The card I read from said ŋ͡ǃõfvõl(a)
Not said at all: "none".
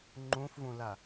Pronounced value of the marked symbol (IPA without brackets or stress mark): a